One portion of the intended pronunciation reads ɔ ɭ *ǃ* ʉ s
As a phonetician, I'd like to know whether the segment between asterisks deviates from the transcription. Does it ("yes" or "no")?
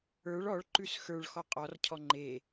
no